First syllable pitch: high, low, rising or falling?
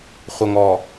low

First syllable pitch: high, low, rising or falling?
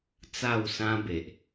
falling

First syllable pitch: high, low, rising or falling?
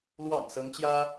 low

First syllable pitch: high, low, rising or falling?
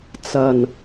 low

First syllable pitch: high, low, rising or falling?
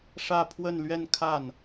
falling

